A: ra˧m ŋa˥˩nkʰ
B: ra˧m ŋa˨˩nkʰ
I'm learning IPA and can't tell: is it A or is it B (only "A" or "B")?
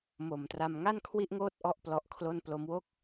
A